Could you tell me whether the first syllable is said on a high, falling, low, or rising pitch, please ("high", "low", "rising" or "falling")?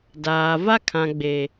low